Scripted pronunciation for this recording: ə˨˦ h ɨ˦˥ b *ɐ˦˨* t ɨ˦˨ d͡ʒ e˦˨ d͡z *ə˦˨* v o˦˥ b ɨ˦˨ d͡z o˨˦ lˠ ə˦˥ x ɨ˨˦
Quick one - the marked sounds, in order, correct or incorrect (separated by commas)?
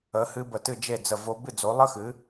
incorrect, correct